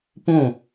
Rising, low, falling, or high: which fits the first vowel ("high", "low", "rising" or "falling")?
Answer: falling